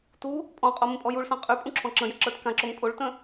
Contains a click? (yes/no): yes